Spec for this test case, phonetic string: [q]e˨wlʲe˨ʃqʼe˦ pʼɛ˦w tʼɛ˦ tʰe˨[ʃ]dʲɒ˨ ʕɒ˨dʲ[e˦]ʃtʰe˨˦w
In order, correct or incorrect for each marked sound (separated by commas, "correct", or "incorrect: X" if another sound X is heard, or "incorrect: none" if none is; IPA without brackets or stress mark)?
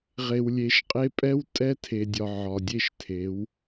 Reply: incorrect: ʁ, incorrect: none, correct